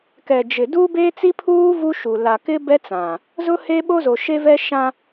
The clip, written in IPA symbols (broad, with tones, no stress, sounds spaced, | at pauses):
k ɛ˨ d͡ʒ ɪ˨ d uː˦ b eː˦ t͡s i˦ pʰ uː˦ v u˦ ʃ u˨ l a˨ k ɪ˦ b ɛ˦ t͡s ã˨ | z ʊ˦ h e˦ ɓ o˦ z o˨ ʃ e˦ v ɛ˦ ʃ ã˦